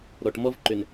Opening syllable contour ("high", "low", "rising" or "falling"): low